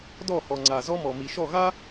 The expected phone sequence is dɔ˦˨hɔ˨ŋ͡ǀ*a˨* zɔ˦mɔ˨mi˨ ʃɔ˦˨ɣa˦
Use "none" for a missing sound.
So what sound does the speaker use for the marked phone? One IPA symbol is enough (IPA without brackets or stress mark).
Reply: a˨